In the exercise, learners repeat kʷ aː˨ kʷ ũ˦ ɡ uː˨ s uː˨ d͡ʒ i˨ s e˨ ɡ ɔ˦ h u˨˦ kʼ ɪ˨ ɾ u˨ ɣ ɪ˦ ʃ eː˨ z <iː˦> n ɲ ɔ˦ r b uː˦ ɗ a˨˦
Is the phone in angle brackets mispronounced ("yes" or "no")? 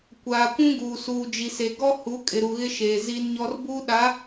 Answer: no